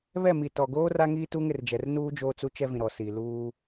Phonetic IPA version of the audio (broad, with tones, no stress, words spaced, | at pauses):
βɛ˦˨mi˨tɔ˨ɡoː˦ ra˦ŋiː˦tuː˦ŋ ɪ˨rd͡ʒɛ˨r nuː˦ d͡ʒoː˦t͡su˦t͡ʃɛ˦vĩ˨ ɾɔ˨si˨luː˦